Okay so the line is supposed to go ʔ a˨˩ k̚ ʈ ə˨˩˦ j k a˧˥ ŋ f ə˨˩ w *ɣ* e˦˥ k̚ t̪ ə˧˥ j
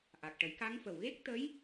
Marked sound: correct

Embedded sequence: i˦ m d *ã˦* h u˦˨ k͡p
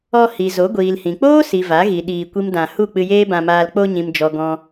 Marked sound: incorrect: ã˧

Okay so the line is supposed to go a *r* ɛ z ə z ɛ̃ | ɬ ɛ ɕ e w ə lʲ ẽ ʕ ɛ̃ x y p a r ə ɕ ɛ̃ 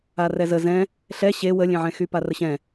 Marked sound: correct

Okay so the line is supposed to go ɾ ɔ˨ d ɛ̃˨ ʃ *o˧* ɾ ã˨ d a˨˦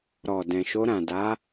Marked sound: correct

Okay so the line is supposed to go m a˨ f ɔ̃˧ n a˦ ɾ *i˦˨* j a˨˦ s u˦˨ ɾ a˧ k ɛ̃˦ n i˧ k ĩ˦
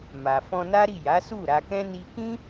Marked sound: correct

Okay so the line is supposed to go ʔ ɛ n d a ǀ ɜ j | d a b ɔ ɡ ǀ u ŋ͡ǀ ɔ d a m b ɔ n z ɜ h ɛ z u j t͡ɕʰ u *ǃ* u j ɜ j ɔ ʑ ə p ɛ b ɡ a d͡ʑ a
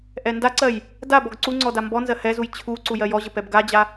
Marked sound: incorrect: ǀ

